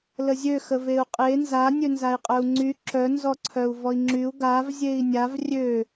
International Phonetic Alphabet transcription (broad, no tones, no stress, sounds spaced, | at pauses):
l ə zʲ ø x ə v e u̯ qʼ e n z a nʲ ø n z a i̯ qʼ œ u̯ ŋ͡ǀ y ǁ œ n z ɔ ǀʰ œ u̯ v ɔ i̯ ŋ͡ǁ y u̯ ɡ a v zʲ e i̯ nʲ a v rʲ ø